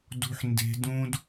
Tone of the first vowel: high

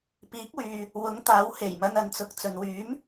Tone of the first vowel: rising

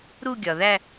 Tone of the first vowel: falling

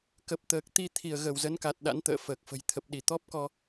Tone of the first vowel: low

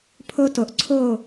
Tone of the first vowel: high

